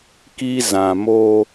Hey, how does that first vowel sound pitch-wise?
high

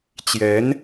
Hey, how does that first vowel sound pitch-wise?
rising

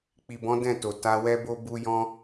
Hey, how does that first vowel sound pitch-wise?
low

